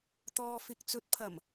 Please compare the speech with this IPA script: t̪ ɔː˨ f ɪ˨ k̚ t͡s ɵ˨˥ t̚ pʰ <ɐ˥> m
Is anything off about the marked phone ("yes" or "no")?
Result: yes